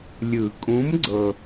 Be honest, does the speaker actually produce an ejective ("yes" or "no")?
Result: yes